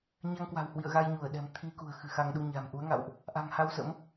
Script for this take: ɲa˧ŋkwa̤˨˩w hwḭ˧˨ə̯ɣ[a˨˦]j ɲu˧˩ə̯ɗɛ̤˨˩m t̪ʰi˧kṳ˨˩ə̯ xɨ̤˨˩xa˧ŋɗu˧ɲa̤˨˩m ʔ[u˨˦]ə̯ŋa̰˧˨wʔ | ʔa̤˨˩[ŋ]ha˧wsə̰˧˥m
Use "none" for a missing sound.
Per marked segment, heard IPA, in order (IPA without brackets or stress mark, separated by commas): a˧, u˨˦, ŋ